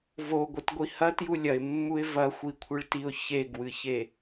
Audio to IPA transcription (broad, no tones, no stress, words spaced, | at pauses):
voɡʷɨt ɡʷihɐ tjulʲɐɪ̯mːuɪ̯ vɐxʷikʷʰɨɭtiʊ̯ çeɡwɨçe